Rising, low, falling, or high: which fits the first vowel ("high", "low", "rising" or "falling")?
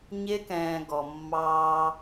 high